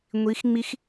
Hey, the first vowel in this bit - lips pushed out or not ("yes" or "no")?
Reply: no